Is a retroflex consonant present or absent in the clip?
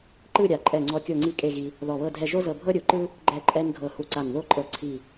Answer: absent